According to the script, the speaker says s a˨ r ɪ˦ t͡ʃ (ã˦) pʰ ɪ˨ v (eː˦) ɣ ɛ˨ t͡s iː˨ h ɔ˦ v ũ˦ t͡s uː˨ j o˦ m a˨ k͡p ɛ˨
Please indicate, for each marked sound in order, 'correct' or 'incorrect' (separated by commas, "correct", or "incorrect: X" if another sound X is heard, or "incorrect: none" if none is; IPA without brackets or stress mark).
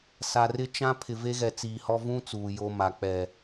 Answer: correct, incorrect: e˦